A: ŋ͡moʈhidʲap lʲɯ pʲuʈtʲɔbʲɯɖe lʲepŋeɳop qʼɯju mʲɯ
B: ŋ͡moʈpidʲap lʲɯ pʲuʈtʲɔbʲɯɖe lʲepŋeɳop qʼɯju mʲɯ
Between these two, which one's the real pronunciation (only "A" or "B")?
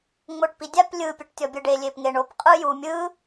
B